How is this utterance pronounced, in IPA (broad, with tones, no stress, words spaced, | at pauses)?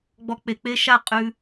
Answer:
ɡ͡bɔ˧k͡pe˨k͡pe˦ʃa˦˨ qʼʉ˧